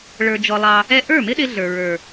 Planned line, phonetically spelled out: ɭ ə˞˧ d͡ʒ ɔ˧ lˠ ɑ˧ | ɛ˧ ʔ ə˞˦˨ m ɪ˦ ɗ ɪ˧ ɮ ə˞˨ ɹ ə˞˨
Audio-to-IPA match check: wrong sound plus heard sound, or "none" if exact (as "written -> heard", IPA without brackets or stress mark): none